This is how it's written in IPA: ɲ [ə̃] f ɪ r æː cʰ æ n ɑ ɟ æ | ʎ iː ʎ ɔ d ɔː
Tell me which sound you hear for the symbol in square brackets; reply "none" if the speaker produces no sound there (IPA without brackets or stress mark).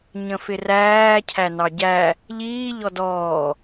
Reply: ə̃